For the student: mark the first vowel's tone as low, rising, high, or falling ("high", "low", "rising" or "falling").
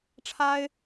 high